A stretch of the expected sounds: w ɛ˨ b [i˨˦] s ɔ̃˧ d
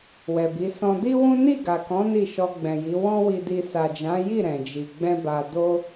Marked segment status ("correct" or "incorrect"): correct